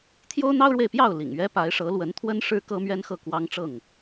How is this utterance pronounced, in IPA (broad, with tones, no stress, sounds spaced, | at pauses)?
t̪ʰ j o˦ ʊ̯ n̪ ɑ˦ ʊ̯ ɻ w e˨ ɪ̯ p j ɑ˥˨ ʊ̯ l ḭ˨˩ ŋ ɥ ɛ˦ p a˨˦ ɪ̯ ʂ ɤ˨˦ l w ə˨˦ n t̪ʰ w ə˦ n ʂ ɻ̩˦ k ɤ˦ m ɥ ɛ˦ n x ɤ˥˨ k w ɑ˦ ŋ ʈ͡ʂ ɤ˥˨ ŋ